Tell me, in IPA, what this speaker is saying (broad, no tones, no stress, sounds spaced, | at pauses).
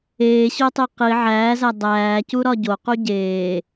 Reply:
eː ɕ o tˤ e q i ʕ æː z æ dˤ æː c u ɾ ɒ ɟ o q u ɟ eː